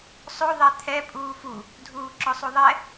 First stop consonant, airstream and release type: aspirated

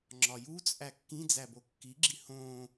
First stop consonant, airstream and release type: click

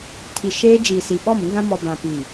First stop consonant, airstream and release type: aspirated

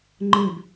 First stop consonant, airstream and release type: click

